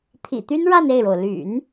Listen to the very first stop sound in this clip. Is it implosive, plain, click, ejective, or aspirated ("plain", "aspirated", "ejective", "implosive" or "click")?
aspirated